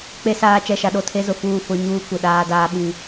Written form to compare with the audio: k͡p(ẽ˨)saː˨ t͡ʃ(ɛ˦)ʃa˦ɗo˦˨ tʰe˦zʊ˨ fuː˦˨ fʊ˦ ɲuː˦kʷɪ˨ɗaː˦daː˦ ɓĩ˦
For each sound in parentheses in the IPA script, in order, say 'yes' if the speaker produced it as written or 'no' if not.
no, no

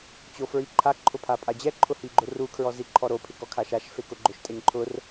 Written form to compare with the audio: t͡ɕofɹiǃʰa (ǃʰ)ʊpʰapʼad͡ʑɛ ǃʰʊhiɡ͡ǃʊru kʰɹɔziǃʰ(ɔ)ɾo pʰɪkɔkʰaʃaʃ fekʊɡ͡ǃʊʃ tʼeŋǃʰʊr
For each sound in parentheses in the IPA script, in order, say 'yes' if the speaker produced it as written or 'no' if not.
yes, yes

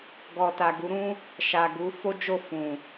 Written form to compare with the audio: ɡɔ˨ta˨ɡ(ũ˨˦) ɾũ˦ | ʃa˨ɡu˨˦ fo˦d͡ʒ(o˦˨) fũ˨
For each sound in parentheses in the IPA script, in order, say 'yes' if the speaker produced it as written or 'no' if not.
no, yes

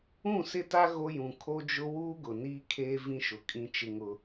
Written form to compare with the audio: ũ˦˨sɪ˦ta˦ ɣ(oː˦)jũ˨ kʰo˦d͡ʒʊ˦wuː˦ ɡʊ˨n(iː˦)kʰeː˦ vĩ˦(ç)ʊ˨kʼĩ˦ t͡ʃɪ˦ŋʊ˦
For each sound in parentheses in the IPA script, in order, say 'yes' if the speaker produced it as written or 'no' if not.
no, yes, no

